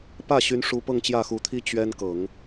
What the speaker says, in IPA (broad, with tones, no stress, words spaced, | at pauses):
pä˥˩ɕy˧˥nʂu˧˥ pɤ˥˧ŋt͡ɕjä˥˩xu˧˥t̪ʰi˥ t͡ɕɥɛ˥nkɤ˨˩˦ŋ